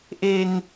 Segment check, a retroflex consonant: absent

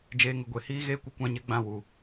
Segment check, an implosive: absent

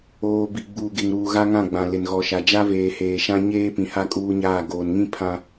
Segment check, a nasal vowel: present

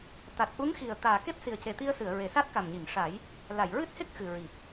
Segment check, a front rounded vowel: absent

